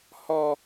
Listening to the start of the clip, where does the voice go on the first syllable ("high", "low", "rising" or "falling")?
low